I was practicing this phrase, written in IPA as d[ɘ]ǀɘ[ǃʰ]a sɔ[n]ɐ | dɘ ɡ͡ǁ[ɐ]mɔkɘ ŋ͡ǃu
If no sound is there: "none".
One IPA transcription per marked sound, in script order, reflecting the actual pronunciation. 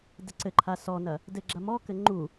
ɛ, ǃʰ, n, ɐ

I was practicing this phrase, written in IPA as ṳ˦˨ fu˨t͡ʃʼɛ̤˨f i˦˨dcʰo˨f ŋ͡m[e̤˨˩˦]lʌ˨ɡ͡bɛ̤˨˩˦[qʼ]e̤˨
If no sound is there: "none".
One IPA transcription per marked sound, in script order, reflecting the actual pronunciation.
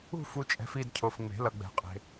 e̤˨˩˦, qʼ

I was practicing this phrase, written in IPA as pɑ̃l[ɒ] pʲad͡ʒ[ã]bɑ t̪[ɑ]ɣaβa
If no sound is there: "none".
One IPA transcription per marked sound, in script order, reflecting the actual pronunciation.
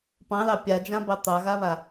ɑ, ã, ɑ

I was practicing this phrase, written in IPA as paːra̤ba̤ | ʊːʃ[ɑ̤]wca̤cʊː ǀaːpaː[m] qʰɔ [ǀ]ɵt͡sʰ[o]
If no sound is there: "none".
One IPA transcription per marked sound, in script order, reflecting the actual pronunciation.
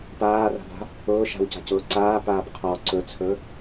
a̤, b, ǀ, ɵ

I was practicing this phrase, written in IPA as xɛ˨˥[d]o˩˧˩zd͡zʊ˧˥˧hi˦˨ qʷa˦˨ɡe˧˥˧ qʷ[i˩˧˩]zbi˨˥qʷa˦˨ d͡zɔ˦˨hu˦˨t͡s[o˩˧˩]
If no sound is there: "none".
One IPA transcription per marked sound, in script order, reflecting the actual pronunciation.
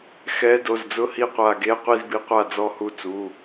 d, i˦˨, u˩˧˩

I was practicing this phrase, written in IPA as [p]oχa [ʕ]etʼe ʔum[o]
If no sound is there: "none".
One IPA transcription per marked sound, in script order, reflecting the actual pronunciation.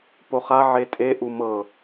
p, ʕ, ɤ

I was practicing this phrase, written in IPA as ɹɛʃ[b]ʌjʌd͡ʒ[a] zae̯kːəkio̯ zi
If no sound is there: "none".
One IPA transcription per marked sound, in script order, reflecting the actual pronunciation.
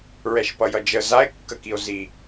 p, ə

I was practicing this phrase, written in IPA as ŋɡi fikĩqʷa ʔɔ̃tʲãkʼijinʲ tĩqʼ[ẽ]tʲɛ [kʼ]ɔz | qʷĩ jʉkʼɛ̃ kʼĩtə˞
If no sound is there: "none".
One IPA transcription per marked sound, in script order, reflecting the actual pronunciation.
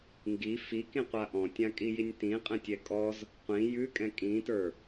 ɛ̃, kʼ

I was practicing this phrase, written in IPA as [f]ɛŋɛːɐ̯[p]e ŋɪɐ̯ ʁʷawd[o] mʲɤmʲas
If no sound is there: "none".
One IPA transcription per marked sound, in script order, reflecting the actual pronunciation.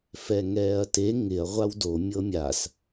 f, t, o

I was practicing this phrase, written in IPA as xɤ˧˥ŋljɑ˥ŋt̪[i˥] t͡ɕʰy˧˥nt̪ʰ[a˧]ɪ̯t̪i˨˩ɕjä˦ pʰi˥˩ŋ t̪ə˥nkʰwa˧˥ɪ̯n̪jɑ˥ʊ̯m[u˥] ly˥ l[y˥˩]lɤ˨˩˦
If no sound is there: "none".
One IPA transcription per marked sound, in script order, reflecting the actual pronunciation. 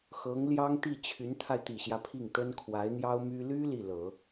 i˥˩, a˧, y˥, i˥˩

